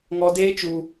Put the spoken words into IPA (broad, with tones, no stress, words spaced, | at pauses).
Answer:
ŋɔ˦ deː˦ t͡ʃu˦